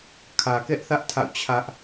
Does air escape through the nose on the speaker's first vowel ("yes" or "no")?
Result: no